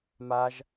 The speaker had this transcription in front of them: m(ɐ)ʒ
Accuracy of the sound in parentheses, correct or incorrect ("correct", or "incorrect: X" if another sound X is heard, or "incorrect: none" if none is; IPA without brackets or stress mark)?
incorrect: a